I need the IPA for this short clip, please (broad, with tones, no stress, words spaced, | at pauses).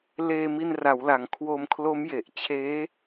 leː˧mi˧nra˩˦wla˩˦ŋ kʰwo˧mkʰlo˦˥mje˨˩ʔt͡ɕʰeː˦˥